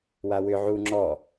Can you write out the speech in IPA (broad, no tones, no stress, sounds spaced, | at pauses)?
w a w ʏ ʕ u ŋ͡ǁ ɔ